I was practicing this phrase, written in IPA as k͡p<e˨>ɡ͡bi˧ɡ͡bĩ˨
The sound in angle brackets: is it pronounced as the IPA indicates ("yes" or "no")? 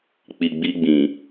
no